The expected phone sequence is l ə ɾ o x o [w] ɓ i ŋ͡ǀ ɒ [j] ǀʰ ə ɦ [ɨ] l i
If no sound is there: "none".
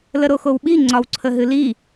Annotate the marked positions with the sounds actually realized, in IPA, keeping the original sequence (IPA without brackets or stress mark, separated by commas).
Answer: w, w, ɨ